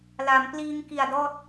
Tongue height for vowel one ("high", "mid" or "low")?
low